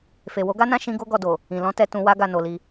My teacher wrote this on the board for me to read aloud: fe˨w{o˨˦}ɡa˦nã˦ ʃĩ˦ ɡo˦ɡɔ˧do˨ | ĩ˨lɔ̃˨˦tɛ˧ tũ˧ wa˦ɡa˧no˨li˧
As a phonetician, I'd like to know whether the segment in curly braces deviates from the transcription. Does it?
no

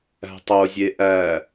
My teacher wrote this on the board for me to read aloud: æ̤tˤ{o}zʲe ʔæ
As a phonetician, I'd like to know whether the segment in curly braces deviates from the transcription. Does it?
no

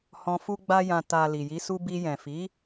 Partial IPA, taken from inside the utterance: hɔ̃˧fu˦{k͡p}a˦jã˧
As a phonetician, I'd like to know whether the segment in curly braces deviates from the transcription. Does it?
yes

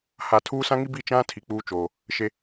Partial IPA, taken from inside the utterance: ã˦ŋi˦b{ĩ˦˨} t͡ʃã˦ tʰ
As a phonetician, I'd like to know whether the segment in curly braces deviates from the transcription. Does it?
yes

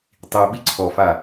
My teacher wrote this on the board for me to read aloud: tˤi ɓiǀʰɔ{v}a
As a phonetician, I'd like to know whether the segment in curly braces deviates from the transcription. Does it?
yes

